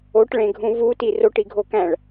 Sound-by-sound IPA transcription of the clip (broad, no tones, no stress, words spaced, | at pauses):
oʈɭẽɡʱũ vuti roʈiɡʱokæ̃ɭ